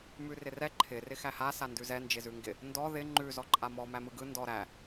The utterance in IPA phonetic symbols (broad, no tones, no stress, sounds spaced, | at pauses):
m ʉ r ɪ r ɛ ǃʰ ɪ r ɪ x æ h a s a n d ʉ z ɛ n d͡ʒ ɪ z ʉ ŋ ɡ ɪ | n d ɔ ð ɪ ŋ͡ǃ ʉ z ɔ ǃʼ a m ɔ m æ m ɯ ɡ ɯ n d ɔ ɾ æ